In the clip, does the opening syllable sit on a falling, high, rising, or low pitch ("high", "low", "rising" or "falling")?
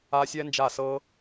high